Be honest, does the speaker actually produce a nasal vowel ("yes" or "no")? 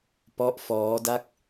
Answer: no